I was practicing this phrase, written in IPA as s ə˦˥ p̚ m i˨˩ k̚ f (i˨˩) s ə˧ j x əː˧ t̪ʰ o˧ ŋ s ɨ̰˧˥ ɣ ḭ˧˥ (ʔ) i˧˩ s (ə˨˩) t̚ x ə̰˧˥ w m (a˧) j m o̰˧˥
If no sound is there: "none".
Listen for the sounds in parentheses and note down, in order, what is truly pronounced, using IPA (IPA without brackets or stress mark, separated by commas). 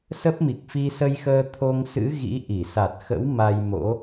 i˧, ʔ, a˨˩, a˧